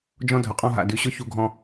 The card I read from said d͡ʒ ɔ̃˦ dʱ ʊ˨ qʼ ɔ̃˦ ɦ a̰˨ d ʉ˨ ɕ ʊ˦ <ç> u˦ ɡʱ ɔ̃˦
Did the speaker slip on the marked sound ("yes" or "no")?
no